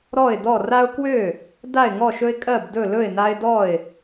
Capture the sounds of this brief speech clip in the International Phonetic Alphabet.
ɾɔ˥˩ɪ̯dɔ˥˩ ra˦ʊ̯kwø˥˩ | da˥˩ɪ̯ŋɔ˥˩ʃɵ˦ɪ̯ kʼɜ˥˩bdɵ˥˩ lɵ˥˩ɪ̯na˦ɪ̯dɔ˥˩ɪ̯

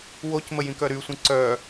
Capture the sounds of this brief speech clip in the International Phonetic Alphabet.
wocmə jĩkœɾysʷĩ ǀœ

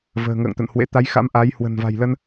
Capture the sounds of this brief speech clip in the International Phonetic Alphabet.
və̤ː˨˩ŋə̰ː˧˨ŋt̪ə̰˧˨n hwḛ˧˥ t̪a˨˦jxa̰˧˥m ʔa˨˦j hwə̤˨˩nva̤˨˩jlə˧n

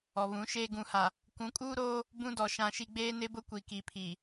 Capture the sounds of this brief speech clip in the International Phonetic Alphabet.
ɔ˨βũ˨˦ʃeː˦ ɡũ˨ha˨ | kʷũ˨˦kʼuː˦ɾoː˦ | bũ˦dɔ˨ ʃã˦ʃi˦ ɡ͡beː˦nɪ˦bʊ˦kʷi˨ ki˨pʰi˨

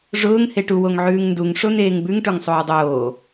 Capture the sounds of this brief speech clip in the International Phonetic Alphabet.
ʐʊːŋ heʈu woŋʕʉːŋnduŋ ʂon̪eːŋbʉŋ ʈoŋsˤoːdˤoː

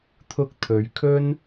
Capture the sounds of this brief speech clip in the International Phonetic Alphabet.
t̪ʰʊ˧k̚ t̪ʰɵ˨ɥ kʰɵ˥n

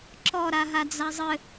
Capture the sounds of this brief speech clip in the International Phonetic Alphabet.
ǁɔ ɾaɦad͡zazˤɘ

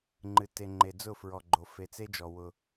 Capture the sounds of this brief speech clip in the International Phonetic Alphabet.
ŋ͡ǃɨ˨te˨ŋ͡ǃe˨ d͡zʊ˦˨fɹɔ˨ɡ͡ǃo˨ fe˨t͡se˦d͡ʒɔ˨ wʊ˦

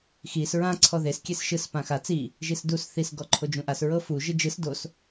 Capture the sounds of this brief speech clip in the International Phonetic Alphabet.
xis ɹã ǀʰɔðes kʲesʃɯs pãxa t͡si | ʒisdus θis ɡɔǃʰod͡ʒũʔas ɹɤfu ʒɯd͡ʒɯs dos

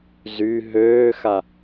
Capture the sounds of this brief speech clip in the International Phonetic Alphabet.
zy ɦøːxa

